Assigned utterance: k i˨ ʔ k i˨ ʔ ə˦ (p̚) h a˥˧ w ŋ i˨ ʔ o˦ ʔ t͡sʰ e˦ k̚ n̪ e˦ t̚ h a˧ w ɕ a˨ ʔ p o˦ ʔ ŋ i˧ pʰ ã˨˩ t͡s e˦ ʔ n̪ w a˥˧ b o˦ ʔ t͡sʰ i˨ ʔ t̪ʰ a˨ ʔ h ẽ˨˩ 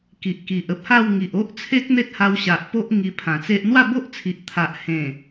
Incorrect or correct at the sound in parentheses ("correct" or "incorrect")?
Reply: correct